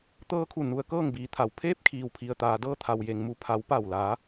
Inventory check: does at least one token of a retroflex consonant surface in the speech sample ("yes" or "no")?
no